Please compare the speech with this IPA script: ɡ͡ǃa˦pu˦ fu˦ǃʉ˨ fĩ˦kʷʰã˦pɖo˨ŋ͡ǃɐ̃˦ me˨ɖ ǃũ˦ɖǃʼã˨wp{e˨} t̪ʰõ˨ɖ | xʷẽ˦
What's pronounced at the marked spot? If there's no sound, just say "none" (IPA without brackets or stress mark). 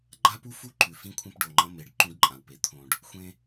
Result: e˨